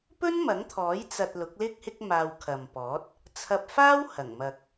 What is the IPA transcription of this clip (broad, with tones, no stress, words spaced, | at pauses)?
pɵ˥nmɐ˨˥ŋt̪ʰɔː˨˥j t͡sɐ˧t̚lʊ˨˥k̚lɪ˥k̚ hɪ˥k̚maː˧w kʰɐ˨mpɔː˨˥t̚ | t͡sʰɐ˧p̚faː˥whɐ˨˩ŋ mɐ˨k̚